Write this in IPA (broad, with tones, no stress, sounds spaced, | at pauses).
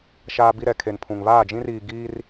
ʃ aː˦ b i˦ ɾ ɛ˨ kʰ e˨ n pʰ ũ˨ ŋ β aː˦˨ d͡ʒ ĩ˦ r iː˨ ɡ iː˦ r